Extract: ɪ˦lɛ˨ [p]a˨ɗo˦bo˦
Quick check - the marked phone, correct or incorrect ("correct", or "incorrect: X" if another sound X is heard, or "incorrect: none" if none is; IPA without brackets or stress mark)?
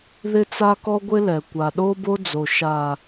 incorrect: kʷ